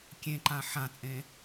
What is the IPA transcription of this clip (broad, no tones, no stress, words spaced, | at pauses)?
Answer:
kʲẽǃã ħãt͡sʼẽ